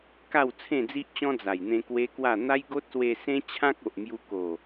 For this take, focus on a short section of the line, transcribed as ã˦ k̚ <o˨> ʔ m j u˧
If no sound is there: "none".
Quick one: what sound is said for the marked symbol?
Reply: o˨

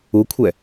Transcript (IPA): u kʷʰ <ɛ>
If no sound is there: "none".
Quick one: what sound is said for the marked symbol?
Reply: ɛ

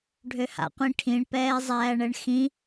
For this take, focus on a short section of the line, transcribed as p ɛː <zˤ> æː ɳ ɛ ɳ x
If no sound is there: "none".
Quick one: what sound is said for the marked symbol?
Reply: zˤ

